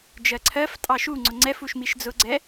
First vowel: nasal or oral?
oral